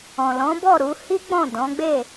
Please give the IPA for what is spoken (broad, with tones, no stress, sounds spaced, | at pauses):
ɔ̃˨ l ɔ̃˨˦ b ɔ˦˨ ɾ u˨˦ h i˦ ɡ͡b ɔ̃˦˨ d ɔ̃˨˦ ɡ͡b e˦˨